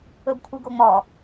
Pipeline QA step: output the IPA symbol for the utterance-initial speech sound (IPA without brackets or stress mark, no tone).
ɵ